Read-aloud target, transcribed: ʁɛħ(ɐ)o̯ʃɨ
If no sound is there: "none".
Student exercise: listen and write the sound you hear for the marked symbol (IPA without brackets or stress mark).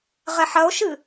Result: ɐ